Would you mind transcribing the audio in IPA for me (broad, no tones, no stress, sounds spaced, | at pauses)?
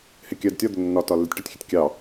h ɪ kʲ ɜ d tʲ ɒ d̪ ʊ nː ɒ t ɒ lː ɪ tʲ ʈ ʌ tʲ xʲ ʊ tʲ kʲ ɑ